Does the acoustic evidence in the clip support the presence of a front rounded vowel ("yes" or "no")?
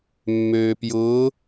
yes